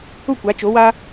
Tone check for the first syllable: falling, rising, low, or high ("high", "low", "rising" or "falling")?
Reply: falling